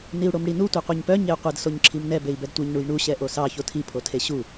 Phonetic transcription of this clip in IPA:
n i u̯ ɽ o m ɽ i n u tʷ e qʷ i ɲ p œ ɲ e u̯ qʷ ɛ d s o ɲ ǁʰ i m n ɛ b e i̯ b ɛ d tʷ i ɲ ɳ u j ɳ u ɕ ɛ ʔ o s ɑ ç o tʰ i pʰ o tʰ e ɕ u

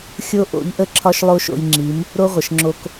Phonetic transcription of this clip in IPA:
xʲ o˦ ʔ o̰˨˦ ʎ ʔ ə˦ ǁʰ ɒ˦ ʃ lˠ o˦ ʃ o̰˧ j ŋ͡ǁ i˨˦ m | ɾ o˦ ʁʷ ə˨ ʃ ŋ͡ǁ o˧ k

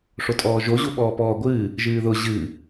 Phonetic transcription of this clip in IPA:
ʂ o tʼ ɔː ʒ o ʑ u ɓ ɔː p ɔː ɡʷ ɨː | ʒ ɨː ð ʊ ʑ ɨː

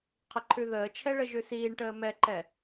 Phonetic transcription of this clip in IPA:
qʰ ɪ ǃʰ ʉ ð əː t͡ʃʰ ɛ ɭ ə ʒ ʉ s iː ɳ ʈ əː m ɛ ǃ ɛ

